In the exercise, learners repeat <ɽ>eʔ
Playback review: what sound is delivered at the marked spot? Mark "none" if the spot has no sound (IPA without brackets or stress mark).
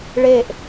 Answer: ɭ